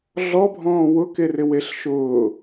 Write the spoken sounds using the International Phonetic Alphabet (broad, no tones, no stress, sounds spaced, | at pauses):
ɮ ɔ bʱ ɔ̃ː w ʊ k e r ɪ w e ɬ ʃ ʊː